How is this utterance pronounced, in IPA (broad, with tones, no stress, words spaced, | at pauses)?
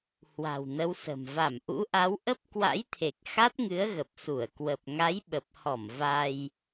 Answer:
hwa̤˨˩wnə˨˦wsə̤˨˩m va˧˩mʔṵ˧˥ʔa˨˦w ʔə˦˥p̚ kwa̰˧˥jt̪ʰe˨˩k̚ xa˦˥t̚ŋɨ˨˦ə̯ɣə˨˩p̚su˧˩ə̯ kwə˨˩p̚ŋa˨˦j ɓə˨˩p̚hɔ˧˩m va˧j